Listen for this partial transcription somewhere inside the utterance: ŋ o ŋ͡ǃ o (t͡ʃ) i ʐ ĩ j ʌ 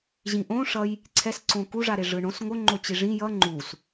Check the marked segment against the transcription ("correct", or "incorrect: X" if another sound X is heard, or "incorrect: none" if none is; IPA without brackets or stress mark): incorrect: t͡ɕ